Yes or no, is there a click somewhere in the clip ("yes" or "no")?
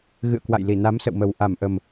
no